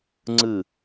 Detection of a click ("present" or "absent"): present